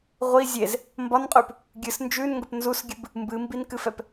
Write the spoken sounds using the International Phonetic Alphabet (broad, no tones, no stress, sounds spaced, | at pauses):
ʁʷ i zʲ e z | m b ɒ n qʼ ʉ p | ɡʲ ɨ s n d͡ʒ ʉ n ŋ ɡ ə p n z u s ɡʲ ɨ b | m b ɨ m b i n k ɨ f ɛ p